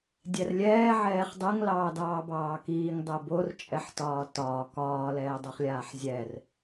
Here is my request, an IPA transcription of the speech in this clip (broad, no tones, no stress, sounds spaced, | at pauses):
dʲ ɛ r lʲ ɛː ʕ ɛː χ dˤ ɛ ŋ l ɑː d ɑː b ɑː k iː ŋ dˤ ɛ b o r t͡ʃʼ ɛ ħ t ɒː t ɒː k ɒː l ɛː dˤ o χ lʲ aː ħ zʲ ɛ r